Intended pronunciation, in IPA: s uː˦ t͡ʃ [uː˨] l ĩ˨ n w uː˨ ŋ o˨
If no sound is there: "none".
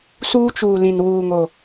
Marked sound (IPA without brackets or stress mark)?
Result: uː˨